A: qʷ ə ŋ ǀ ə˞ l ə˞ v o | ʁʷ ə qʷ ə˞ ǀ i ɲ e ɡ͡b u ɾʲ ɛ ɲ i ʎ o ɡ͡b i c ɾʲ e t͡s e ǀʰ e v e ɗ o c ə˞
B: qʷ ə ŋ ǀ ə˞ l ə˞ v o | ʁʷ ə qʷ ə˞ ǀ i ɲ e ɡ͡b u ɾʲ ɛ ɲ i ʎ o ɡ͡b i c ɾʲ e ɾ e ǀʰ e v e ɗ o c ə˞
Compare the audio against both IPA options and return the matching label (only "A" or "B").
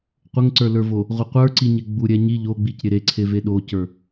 B